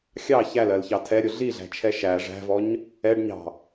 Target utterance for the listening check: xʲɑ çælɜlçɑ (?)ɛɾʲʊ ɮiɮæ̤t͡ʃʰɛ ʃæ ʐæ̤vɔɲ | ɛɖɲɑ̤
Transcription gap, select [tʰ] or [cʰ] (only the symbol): tʰ